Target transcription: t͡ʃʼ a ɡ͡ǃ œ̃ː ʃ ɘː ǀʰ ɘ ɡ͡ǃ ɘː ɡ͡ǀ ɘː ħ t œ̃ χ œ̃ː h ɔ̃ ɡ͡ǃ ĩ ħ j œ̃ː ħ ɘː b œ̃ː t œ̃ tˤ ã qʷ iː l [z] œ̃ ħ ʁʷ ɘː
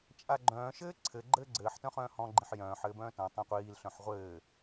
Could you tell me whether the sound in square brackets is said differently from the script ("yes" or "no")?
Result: yes